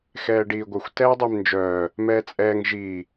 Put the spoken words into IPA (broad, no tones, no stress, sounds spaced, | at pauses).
x ɛː ɖ iː ɡʷ œ xʷ t ɛː dˤ i m n d͡ʒ œː | m ɛː t͡sʼ ɛː ŋ ʒ iː